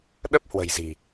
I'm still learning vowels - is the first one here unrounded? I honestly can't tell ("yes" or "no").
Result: yes